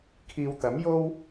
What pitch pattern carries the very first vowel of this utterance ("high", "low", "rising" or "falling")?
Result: low